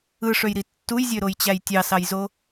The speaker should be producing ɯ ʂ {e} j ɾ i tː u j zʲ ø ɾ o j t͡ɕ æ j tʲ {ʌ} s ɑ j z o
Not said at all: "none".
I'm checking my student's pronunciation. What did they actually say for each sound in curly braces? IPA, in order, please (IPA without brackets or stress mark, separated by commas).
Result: ø, ɑ